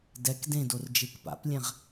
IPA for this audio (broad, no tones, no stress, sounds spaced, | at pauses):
d ɛ k d ẽ d o r d͡ʒ e k p a̰ p lʲ ɛ̃ ʁ